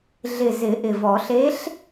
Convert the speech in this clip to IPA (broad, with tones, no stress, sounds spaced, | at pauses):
ɮ ɪ˨˩ z ɪ˨˩˦ ʔ ɪ˨˩ v ɔ˨˩˦ ɬ e˧˥ ɬ